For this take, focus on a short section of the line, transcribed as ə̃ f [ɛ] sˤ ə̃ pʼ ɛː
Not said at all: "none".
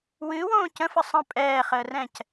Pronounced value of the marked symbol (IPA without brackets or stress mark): ə